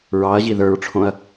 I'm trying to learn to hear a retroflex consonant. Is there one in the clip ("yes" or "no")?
yes